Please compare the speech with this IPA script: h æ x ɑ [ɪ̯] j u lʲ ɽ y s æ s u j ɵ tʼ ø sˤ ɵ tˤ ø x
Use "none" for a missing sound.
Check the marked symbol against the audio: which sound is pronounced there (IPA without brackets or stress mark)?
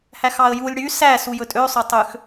ə̯